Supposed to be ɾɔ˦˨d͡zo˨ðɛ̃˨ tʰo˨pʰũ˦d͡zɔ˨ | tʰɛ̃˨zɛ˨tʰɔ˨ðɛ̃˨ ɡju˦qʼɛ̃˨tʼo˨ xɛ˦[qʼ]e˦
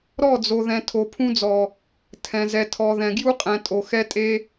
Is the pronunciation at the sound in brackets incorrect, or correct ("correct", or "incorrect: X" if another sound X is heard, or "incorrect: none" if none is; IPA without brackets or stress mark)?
incorrect: tʼ